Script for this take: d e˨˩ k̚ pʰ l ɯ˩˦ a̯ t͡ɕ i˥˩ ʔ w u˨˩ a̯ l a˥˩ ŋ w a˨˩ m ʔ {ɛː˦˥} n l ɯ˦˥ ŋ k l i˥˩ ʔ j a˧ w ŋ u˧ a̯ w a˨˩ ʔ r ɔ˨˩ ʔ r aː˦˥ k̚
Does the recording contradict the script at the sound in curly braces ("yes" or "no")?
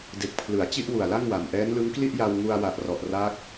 no